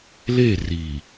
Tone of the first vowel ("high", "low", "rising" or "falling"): falling